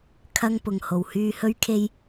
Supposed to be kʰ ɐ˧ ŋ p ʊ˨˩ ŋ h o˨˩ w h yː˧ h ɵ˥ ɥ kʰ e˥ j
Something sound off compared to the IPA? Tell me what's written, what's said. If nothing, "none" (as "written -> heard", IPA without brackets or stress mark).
none